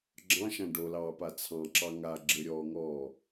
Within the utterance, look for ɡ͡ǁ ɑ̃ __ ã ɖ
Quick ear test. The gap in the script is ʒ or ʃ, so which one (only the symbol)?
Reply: ʃ